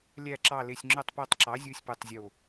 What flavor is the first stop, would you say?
click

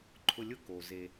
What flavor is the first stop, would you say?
click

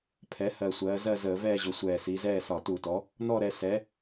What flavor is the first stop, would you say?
aspirated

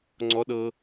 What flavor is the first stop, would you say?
click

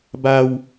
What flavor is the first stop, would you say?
plain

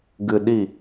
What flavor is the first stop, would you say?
plain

